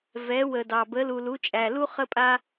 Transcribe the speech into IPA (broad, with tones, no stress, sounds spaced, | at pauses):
v ɛ˨˦ w ə˨ d ɑ˨ b ə˨˦ l u˨ l u˨˦ t͡ʃʼ æ˨ l u˥ χ ə˥ pʼ a˥